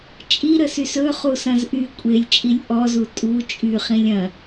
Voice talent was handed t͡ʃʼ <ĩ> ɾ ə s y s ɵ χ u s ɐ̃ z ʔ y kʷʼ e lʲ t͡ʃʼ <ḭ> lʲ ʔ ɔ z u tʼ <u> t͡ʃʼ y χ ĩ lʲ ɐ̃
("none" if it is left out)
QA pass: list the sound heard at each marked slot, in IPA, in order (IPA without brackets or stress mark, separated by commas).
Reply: i, i, u